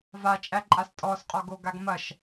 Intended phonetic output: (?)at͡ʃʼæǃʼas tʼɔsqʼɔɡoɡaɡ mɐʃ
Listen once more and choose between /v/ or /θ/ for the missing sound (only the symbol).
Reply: v